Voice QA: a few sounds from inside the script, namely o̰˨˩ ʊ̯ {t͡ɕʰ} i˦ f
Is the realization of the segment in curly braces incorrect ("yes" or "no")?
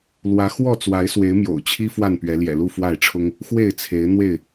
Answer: no